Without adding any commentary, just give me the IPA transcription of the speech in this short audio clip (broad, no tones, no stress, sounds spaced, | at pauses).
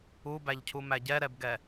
u b æ ʎ cʰ u m æ ɟ ɛ ɾ ɛ b ɡ ɛ